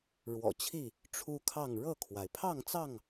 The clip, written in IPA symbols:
ɻ w ɔ̰˨˩ t͡ɕʰ i˥˨ | ʈ͡ʂʰ u˦ kʰ ɑ˥˨ ŋ ɻ ɤ˥˨ kʰ w a˩ ɪ̯ pʰ ɑ˥˨ ŋ t͡s ɑ˥˨ ŋ

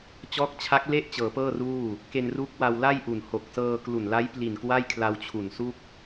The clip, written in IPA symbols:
t͡ɕ ɔː˦˥ k̚ t͡ɕʰ a˦˥ k̚ l e˥˩ ʔ t͡ɕ ɤː˩˦ p ɤː˥˩ r uː˥˩ | k e˧ n r u˦˥ k̚ w a˧ w l a˥˩ j ʔ u˨˩ n h o˨˩ k̚ s ɤː˧ k l u˨˩ n l a˦˥ j p l i˨˩ n k w a˥˩ j kʰ l a˧ w t͡ɕʰ u˨˩ n s u˥˩ k̚

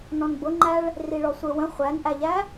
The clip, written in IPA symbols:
n ɔ̃ n b ʊ ŋ͡ǃ æ ɭ | r i ɭ ɔ sʷ ə˞ w ə̃ χʷ æ n ʔ æ ʎ æ

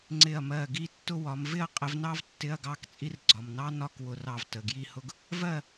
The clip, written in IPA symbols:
ŋ͡ǀ ɪ˧˩ ɐ̯ m ɜ˧˩ ɡ i˥˨ tː ʊ˥ w ɒ˨˥ m v ɪ˥˨ ɐ̯ qʼ ɪ˨˥ v n ɑ˥ v tː ɪ˧˥˧ ɐ̯ ɡ ɑ˥˨ k t͡sʼ i˥ r ɡ͡ǀ ɒ˩˧˩ m n ɑ˥ n ɒ˥˨ k w ʊ˧˩ r ɑ˧˩ v t ə˩˧˩ ɡ j i˥˨ h ʊ˥ ɡ | v ɜ˥˨

